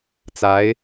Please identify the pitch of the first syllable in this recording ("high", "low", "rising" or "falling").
rising